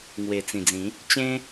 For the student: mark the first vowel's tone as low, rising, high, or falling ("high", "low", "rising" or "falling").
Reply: low